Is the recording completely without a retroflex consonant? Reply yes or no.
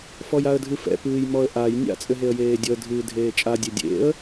yes